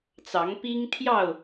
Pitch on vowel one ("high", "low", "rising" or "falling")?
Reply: rising